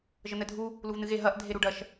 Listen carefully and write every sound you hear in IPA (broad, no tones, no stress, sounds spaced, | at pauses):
ʒ ə n̪ ɛ dʱ u | l u v n ɨ ɣ e ɦ ɐ ʔ dʱ e ɾ u ɖ ɐ ʃ